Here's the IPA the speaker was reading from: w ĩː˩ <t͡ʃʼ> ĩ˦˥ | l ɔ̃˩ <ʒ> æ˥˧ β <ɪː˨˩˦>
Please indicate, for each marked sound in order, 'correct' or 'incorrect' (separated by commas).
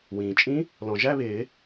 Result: correct, correct, correct